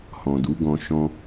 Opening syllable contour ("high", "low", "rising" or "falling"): low